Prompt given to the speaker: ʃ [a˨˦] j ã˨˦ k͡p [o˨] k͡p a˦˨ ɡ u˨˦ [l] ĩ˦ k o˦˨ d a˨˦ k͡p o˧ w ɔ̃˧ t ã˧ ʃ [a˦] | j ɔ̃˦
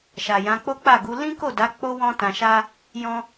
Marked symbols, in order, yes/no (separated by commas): no, no, yes, yes